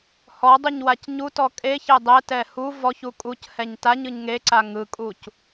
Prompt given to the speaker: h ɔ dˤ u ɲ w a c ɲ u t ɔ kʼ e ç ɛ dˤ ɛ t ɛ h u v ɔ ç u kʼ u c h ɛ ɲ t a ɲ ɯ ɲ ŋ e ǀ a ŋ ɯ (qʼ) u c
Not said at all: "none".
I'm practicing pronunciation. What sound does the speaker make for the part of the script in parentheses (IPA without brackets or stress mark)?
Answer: kʼ